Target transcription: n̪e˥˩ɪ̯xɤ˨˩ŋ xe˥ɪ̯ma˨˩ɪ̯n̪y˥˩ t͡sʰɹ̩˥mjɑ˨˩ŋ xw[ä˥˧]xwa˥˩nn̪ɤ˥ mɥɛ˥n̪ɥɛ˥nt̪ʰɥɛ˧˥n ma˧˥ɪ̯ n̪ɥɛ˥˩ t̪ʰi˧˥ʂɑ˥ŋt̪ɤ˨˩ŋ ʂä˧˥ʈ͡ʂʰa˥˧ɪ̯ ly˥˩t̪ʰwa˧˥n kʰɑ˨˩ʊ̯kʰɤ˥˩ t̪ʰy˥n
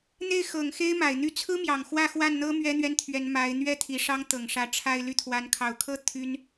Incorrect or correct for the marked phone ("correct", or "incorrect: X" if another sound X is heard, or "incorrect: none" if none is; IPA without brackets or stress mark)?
correct